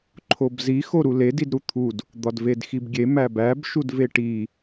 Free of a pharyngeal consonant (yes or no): yes